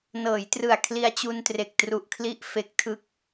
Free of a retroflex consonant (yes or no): yes